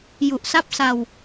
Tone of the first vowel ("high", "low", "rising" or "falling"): low